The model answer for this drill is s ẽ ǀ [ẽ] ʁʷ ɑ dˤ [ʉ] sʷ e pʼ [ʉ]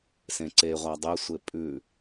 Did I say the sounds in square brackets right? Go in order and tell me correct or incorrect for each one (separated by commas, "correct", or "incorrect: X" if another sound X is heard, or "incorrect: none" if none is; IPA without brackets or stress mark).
incorrect: e, incorrect: ɘ, correct